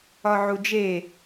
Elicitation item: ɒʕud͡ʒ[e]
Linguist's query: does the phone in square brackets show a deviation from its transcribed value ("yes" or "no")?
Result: no